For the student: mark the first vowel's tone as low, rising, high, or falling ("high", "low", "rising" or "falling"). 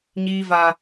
high